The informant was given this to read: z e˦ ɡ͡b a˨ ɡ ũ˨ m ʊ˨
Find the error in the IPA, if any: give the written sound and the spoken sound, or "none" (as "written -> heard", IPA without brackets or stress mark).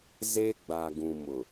none